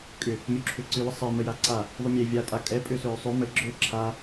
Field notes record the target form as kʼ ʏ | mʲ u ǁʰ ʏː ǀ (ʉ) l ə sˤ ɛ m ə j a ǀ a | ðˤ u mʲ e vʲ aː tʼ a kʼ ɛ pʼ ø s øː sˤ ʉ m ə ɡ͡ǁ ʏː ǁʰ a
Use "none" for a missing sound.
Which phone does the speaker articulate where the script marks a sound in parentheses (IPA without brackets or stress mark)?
ʉ